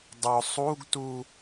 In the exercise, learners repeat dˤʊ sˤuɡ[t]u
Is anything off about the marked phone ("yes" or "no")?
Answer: no